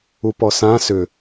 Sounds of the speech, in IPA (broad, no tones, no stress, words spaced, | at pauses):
upɔsã sʏ